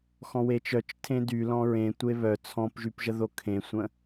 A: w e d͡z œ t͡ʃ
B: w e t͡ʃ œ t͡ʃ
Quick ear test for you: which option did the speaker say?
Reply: B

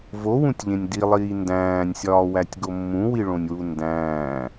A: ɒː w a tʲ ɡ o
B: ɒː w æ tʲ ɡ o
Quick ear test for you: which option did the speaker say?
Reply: B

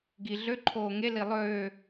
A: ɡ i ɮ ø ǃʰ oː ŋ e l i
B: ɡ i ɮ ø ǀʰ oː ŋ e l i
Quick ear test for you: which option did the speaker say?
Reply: A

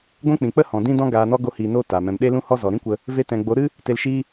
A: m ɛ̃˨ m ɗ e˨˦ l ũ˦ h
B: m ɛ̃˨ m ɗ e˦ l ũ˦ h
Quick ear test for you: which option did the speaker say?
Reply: B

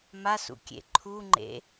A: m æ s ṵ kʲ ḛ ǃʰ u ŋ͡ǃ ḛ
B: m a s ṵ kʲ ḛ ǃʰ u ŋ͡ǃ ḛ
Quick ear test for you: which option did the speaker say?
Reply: B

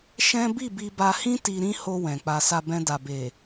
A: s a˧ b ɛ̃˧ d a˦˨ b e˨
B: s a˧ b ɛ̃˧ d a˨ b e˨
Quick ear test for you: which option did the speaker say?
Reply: B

